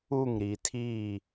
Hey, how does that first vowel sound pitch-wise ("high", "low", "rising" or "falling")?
falling